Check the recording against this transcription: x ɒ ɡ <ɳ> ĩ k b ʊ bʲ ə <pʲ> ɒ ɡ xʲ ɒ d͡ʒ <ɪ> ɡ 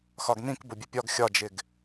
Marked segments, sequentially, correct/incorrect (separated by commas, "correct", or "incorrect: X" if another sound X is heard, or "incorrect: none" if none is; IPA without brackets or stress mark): incorrect: n, correct, correct